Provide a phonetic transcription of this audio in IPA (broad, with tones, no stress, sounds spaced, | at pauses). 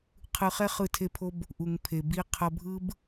qʰ ɯ˧ χ ɛ˦ χ ɯ˦˨ tʰ e˦ pʰ o˦ b | ʔ u˨ ŋ pʰ e˨ b i˧ qʰ ʌ˧ bʱ ɯ˦ b